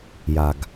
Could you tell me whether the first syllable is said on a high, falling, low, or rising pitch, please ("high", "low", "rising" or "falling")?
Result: low